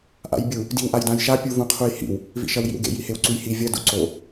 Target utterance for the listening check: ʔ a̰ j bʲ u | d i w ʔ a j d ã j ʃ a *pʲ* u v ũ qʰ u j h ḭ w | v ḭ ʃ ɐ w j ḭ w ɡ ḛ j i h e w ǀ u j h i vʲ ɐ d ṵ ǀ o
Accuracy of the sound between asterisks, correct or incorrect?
correct